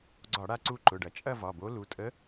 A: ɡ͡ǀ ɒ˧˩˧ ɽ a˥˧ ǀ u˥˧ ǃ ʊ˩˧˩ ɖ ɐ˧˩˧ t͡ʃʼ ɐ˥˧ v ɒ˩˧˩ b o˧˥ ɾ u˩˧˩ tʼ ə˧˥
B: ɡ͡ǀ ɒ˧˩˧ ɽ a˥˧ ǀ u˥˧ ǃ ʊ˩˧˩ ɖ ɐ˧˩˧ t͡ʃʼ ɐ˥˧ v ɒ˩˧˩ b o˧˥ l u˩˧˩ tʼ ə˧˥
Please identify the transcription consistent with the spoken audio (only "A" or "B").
B